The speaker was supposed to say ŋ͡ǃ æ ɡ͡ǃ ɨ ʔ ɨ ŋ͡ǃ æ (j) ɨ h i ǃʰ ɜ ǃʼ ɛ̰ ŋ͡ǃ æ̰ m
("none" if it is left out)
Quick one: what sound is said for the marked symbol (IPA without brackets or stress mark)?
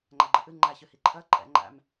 ç